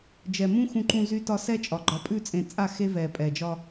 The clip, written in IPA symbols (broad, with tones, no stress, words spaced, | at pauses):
d͡ʒɛ˨mũ˦ xũ˨ǃũ˨zy˨tɒ˨ sɛ˦t͡ʃʼɒ˨ ɡ͡ǃɒ˨pʼʉ˦˨t͡sʼẽ˨t͡sʼa˦˨ xe˦ vɛ˨ pʼɛ˨d͡ʒɒ˦